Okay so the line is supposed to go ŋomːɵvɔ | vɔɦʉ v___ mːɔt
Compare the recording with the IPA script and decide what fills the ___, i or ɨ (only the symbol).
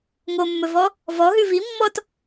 i